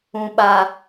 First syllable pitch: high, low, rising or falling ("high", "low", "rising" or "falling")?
low